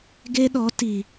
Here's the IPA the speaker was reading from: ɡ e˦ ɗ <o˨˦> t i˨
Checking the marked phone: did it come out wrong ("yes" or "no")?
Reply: yes